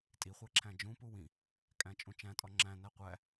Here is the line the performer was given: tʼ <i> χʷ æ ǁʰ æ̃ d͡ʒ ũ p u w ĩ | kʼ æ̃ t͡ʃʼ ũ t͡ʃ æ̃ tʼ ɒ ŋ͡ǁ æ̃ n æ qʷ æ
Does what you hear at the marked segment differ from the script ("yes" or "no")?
no